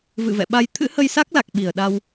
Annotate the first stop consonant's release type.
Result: implosive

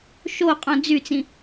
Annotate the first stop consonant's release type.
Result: ejective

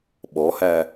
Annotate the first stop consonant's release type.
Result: implosive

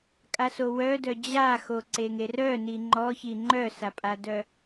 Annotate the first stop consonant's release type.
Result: ejective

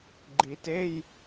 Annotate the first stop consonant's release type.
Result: click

